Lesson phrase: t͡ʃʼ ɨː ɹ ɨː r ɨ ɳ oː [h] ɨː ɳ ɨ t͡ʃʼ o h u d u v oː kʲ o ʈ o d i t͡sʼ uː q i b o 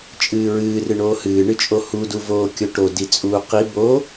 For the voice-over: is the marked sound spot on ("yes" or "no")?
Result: yes